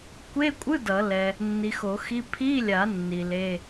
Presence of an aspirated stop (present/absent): present